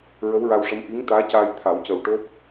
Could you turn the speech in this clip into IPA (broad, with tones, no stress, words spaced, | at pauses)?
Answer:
ɹə˧˥wɹa˧wʂə˧˥m ʔi˧˥ŋt̪aː˧˥caː˧j t̪ʰa˨˩˦wcə˨˩w ʈo˦˥p̚